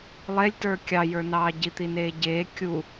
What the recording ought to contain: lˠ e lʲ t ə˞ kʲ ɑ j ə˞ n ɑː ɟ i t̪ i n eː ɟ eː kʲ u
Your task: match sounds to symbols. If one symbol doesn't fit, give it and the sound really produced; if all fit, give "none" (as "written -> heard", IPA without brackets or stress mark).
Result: none